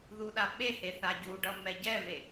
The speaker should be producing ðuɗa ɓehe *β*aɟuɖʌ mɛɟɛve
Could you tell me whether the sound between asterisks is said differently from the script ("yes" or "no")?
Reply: yes